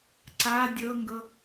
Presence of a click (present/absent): present